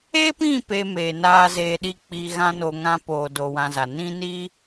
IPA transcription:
e˦pĩ˦˨ pe˧meː˨naː˧ zeː˧ɗi˦ k͡pi˧ɣã˦no˧ŋã˦ poː˧do˧wã˧za˨ nĩ˦niː˦

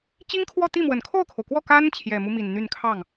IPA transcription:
t͡ɕi˥ŋkʰwɔ˥˧t̪i˥˩mwə˨˩n kʰo˥˩ʊ̯kʰo˩ʊ̯kwɔ˥˩ ka˥n t͡ɕʰjɛ˨˩mu˦mi˨˩n n̪y˥˧n kʰɑ˥˩ŋ

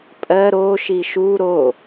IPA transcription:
pʼɜ ɾo ʃiʃu ɾo

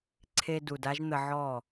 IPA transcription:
ǀʰe˨ du˨da˧ʒ n̪ə˧ʕɔ˦˨

